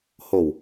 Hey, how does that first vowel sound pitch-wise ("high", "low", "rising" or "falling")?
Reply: low